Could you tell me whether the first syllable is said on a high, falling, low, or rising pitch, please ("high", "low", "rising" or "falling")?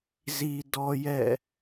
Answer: low